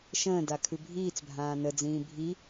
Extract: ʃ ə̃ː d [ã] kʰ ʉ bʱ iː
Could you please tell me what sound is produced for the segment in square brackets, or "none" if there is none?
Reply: a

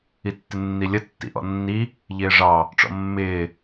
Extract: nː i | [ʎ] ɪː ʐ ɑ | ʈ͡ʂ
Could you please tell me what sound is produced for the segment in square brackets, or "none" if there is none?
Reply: ʎ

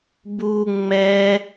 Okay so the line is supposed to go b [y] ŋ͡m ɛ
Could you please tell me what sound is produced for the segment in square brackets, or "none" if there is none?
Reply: u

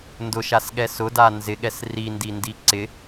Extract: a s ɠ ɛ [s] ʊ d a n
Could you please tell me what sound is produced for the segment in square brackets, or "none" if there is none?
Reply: s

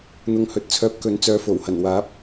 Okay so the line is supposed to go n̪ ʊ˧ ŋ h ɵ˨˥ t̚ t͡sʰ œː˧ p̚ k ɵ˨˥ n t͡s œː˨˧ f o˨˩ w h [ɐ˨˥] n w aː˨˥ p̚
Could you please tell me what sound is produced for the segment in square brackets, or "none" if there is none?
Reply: ɐ˨˩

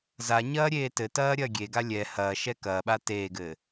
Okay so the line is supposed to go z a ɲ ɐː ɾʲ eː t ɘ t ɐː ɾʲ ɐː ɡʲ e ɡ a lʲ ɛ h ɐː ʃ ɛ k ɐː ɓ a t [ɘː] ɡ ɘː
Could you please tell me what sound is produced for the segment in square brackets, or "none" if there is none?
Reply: eː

